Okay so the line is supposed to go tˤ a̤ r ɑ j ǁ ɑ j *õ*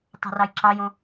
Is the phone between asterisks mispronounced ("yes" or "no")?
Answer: no